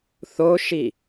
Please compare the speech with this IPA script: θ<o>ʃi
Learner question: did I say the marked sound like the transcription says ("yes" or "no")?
yes